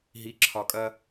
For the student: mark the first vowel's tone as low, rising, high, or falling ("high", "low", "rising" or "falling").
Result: low